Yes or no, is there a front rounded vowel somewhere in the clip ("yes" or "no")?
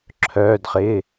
yes